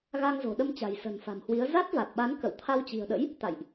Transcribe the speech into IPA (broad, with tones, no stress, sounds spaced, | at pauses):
ɣ a˧ ŋ z o̤˨˩ ɗ ə˧ m t͡ɕ a̤˨˩ j s ə̤˨˩ n f a̤˨˩ m h w i˨˦ ə̯ z a˦˥ t̚ v a˨˩ t̚ ɓ a˨˦ n k ə̰˧˨ w t̪ʰ a˧ w t͡ɕ i̤˨˩ ə̯ ɗ ə̰˧˥ j | t̪ a̰˧˨ j ʔ